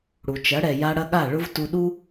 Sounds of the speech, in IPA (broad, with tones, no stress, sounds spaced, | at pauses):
ɽ u˨ t͡ʃ ɐ˨˦ ɽ ɛ˨ j a˧ ɽ ɐ˦ ɠ a˦˨ ɭ ʊ˦ v t u˧ ɗ u˦